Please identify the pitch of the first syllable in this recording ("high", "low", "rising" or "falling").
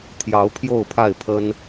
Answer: rising